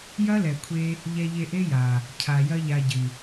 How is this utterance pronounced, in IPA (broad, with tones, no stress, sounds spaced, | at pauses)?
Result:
j ɐ˦ l ɛ˨ kʷʰ e˧ | ʎ ɛ˧ ʎ e˧ ʔ e˦ j a˨ | cʰ a˨ j ɐ˦ ʎ a˧ ɟ ɨ˨